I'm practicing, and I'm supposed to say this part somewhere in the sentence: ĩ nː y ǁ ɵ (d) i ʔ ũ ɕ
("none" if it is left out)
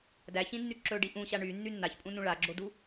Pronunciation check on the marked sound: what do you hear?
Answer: ɖ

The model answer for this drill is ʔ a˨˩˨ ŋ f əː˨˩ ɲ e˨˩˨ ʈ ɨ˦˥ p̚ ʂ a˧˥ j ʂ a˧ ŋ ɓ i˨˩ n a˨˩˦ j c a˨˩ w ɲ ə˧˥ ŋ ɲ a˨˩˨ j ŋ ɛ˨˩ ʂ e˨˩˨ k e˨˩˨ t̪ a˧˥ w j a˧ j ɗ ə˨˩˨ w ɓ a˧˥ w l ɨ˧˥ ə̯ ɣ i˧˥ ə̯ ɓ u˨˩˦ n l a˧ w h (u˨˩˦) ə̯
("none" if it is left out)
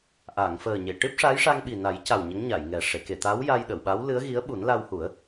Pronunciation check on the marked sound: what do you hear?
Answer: u˨˩˦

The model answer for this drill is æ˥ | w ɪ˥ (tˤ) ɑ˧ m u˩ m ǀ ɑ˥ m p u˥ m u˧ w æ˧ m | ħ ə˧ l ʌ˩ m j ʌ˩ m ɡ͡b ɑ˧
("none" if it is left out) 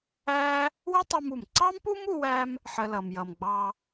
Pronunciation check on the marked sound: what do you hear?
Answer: tˤ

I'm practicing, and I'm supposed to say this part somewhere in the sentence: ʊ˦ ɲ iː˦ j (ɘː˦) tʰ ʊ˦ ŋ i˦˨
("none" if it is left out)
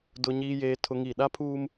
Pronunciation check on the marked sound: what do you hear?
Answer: eː˦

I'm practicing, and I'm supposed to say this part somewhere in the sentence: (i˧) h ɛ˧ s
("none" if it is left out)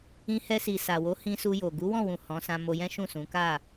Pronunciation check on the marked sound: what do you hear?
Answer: ĩ˧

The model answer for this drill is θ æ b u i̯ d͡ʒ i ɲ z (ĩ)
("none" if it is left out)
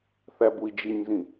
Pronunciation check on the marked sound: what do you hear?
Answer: ĩ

